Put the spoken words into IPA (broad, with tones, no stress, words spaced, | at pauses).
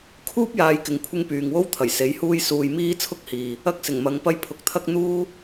kʰuː˥p̚ jaː˧jkɪ˨ŋkʷʰɪ˥ŋpyː˨ŋ wo˥wt̪ʰɐ˨˩j se˨˥j huː˥jsuː˧j miː˥ t͡sʰʊ˥k̚hiː˨ | ɐ˥k̚sɪ˨˩ŋmɐ˨˧ŋpɐ˥j pʰʊ˨˥k̚t̪ʰɐ˥k̚ n̪uː˥